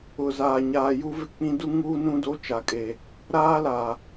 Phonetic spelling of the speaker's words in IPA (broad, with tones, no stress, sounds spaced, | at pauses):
ʊ˨ z aː˨ ɲ aː˨ j u˦ v ɪ˦ k͡p ĩ˦ d u˦ ŋ uː˦ n ũ˦ d o˦ t͡ʃ a˨ kʼ e˨ | ɾ aː˦ l a˨